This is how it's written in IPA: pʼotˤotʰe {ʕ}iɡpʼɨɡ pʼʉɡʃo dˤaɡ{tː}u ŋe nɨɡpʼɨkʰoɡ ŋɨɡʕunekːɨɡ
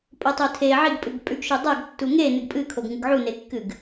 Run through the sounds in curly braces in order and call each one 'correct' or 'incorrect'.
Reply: correct, correct

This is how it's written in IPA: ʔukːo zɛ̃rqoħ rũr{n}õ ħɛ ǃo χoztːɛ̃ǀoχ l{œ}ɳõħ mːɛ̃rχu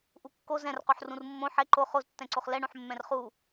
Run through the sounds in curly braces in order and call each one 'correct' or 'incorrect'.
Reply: incorrect, incorrect

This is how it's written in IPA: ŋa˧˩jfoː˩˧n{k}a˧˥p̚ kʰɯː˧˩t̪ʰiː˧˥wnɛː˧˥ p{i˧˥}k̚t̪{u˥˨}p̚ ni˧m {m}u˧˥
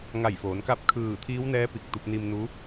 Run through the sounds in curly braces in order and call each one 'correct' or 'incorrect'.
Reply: correct, incorrect, incorrect, incorrect

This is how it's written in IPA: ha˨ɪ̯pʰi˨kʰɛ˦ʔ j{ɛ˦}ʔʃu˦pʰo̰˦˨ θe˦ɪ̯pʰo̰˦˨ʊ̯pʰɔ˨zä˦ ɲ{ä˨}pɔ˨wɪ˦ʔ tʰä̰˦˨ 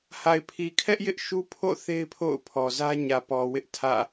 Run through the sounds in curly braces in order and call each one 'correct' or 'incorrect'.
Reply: incorrect, correct

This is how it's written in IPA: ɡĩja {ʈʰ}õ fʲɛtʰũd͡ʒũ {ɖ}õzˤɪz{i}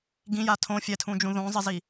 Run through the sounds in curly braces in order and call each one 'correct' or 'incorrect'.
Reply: incorrect, incorrect, correct

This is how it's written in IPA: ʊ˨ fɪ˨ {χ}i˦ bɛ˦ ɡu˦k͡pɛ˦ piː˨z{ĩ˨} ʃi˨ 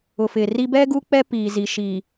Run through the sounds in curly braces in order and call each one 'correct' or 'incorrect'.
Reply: incorrect, incorrect

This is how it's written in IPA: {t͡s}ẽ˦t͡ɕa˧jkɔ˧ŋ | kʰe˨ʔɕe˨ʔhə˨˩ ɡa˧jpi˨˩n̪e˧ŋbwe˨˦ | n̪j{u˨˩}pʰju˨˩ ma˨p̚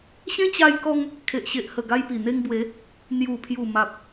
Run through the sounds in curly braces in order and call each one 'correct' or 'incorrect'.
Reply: incorrect, correct

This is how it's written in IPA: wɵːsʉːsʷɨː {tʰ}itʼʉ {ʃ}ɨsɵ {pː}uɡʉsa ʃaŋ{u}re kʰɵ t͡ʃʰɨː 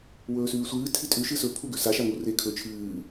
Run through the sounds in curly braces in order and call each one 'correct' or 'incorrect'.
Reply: correct, correct, incorrect, correct

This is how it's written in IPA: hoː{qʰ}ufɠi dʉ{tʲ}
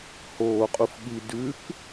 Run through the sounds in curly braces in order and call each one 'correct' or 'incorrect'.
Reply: incorrect, incorrect

